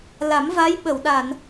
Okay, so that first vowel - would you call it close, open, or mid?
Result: open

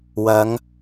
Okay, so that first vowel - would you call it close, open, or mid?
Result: open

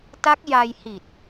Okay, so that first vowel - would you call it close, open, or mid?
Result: open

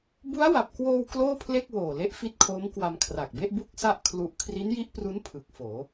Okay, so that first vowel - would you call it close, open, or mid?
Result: close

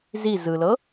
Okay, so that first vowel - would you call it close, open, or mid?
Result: close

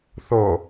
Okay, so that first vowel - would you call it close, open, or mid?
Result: mid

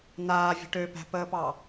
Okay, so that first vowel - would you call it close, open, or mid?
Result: open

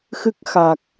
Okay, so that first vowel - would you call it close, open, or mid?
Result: close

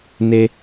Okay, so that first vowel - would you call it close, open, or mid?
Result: mid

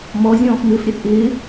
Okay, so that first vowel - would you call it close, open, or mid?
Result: mid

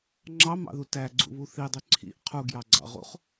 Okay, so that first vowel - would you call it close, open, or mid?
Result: open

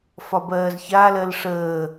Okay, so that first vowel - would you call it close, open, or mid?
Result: open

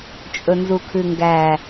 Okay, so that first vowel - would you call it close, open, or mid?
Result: mid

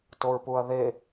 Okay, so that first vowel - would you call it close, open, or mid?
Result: mid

